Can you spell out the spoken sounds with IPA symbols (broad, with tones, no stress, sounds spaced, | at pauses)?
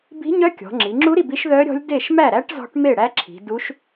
b i̤˧˥ ɲ œ˧˥ kʲ ɔ̤˩˧ ŋ͡ǁ i˩˧ ŋ͡ǁ u˧˥ ɾ i˥˩ b i˧˥ ʃ ð œ˧˥ ɾʲ ɔ̤˧˥ lʲ d e˥˩ ʃ m æ˥˩ ɾ æ˧˥ ʈ z ɔ̤˧˥ ʈ m e˥˩ ɽ æ˧˥ ǁʰ i̤˩˧ d u˧˥ ʃ